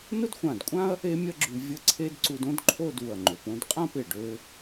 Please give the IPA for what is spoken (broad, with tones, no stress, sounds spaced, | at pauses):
n ʊ˥ d xʷ ã˧˩ d kʷʼ ã˥ ɐ̯ | e˥ mʲ ɐ˥ ɡ͡ǁ y˧ vʲ ə˥ ǀʰ e˥ d ǀ u˧ d õ˥ d ǃʰ o˥˧ d u˧˩ ɐ̯ ŋ͡ǃ ø˩˧ p õ˥ d qʼ ã˥˧ p ɪ˧˩ ɖ ø˧